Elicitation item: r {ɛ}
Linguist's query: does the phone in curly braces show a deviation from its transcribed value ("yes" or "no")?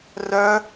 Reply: yes